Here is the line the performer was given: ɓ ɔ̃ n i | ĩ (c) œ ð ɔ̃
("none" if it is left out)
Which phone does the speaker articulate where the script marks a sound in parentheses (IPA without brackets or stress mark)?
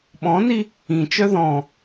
t͡ʃ